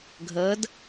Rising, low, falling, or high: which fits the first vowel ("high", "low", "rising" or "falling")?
rising